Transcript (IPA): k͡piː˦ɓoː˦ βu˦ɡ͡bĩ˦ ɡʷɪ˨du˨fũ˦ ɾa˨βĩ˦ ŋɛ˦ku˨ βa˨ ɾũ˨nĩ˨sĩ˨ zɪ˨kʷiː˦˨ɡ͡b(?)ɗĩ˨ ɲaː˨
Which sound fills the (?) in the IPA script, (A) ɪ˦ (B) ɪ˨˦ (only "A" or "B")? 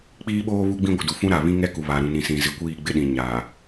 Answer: A